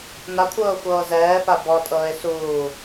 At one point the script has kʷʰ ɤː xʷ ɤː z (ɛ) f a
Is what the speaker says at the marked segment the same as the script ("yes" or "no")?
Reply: no